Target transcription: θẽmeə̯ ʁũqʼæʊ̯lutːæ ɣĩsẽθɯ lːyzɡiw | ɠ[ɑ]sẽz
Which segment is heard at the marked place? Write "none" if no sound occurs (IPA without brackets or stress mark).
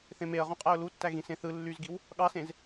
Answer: ɑ